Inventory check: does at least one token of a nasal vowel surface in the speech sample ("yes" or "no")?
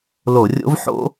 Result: no